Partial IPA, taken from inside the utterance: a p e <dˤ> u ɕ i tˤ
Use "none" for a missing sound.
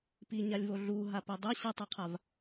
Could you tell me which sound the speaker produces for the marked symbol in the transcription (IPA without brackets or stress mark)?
dˤ